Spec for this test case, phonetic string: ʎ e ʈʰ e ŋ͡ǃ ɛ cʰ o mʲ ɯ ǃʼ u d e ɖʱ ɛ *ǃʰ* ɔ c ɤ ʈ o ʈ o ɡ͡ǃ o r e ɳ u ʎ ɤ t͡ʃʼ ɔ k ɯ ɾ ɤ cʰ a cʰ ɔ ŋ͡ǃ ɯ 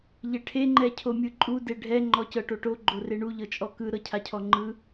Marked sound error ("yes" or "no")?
yes